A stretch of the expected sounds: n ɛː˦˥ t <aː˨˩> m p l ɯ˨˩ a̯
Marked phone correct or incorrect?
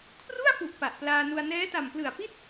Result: incorrect